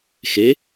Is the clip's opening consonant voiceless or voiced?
voiceless